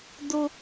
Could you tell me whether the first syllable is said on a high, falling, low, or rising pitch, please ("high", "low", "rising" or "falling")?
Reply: high